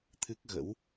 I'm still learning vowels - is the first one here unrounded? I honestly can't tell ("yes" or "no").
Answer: yes